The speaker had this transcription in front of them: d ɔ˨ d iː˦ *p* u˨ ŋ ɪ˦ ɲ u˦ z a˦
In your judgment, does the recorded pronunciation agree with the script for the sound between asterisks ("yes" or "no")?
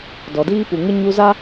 yes